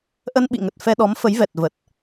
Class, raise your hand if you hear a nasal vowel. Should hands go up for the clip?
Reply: no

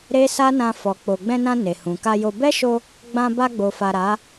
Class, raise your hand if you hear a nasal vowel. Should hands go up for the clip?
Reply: yes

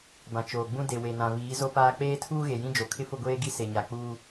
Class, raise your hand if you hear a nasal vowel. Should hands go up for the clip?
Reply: yes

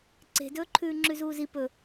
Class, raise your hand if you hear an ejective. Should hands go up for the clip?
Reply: no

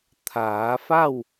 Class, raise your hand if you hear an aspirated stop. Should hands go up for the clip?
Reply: yes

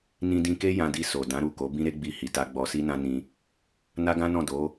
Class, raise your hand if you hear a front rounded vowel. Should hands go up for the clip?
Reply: no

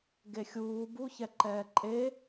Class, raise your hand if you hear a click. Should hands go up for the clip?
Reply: yes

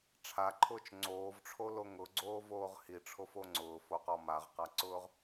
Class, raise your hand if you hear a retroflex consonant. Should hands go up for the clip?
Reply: yes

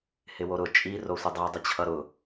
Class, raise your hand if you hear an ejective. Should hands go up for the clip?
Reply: yes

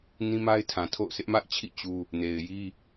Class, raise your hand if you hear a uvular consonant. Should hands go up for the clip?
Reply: no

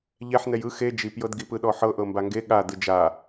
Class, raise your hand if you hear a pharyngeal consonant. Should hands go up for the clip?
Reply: yes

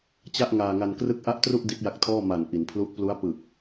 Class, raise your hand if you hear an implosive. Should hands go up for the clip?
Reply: no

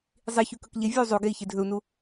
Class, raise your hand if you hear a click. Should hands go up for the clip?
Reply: no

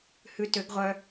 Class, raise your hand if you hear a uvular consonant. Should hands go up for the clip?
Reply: yes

